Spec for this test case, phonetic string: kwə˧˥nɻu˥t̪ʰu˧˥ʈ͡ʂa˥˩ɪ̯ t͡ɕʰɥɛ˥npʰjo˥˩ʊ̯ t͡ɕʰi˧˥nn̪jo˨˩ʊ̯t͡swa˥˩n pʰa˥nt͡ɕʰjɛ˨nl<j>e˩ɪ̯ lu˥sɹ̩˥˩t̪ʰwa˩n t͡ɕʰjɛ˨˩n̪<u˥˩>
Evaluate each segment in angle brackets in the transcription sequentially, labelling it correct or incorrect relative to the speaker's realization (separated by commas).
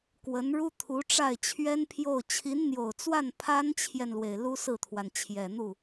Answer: incorrect, correct